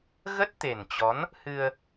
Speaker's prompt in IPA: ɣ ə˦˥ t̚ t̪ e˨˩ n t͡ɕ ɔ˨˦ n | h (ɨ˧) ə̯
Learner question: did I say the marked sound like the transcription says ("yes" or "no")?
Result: yes